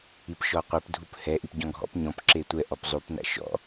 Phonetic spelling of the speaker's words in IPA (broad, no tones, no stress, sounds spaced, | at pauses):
i p ʃ ɔ qʷ ɛ p dʱ u p h ɛ ʔ i p ɟ ɔ̃ ɡʱ ɔ̰ p ɲ ɔ̃ p ǁ e tʷ ɛ ʔ ɔ p zˤ u p n a̰ ʃ ɔ̰